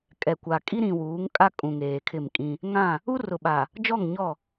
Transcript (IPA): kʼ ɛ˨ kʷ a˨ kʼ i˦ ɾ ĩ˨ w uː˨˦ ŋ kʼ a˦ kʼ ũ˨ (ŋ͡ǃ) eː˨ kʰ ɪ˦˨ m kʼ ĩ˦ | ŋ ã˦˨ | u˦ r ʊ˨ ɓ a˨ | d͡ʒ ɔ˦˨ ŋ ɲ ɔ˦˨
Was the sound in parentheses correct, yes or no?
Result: no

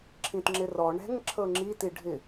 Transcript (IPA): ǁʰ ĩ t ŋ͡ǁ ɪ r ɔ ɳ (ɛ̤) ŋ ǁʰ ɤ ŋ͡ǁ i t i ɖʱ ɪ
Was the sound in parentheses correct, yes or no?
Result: yes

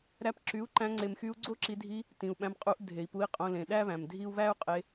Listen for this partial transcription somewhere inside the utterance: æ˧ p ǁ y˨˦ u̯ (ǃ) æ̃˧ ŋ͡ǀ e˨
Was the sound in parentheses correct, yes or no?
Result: yes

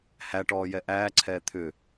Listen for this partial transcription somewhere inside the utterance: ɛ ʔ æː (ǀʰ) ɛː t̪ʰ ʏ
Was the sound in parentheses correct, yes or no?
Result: yes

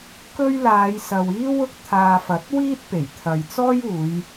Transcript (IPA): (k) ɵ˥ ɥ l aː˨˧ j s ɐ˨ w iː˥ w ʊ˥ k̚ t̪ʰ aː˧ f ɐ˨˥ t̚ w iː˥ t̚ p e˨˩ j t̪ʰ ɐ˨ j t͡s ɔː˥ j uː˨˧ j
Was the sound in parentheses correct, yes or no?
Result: yes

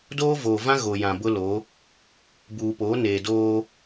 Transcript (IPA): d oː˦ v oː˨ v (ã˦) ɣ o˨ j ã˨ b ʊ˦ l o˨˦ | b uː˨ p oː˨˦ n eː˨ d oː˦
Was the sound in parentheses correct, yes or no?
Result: yes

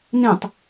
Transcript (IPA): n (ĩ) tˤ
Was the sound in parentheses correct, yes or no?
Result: yes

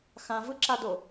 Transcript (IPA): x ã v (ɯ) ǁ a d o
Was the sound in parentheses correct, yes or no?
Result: yes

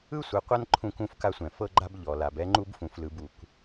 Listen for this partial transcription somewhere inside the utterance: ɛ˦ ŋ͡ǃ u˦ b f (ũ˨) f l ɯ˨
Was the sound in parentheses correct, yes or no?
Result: yes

